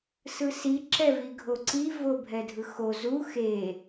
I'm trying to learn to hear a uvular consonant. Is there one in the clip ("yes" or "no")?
no